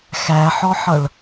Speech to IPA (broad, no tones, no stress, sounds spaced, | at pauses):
x æ ħ ɔ ħ ʌ ɭ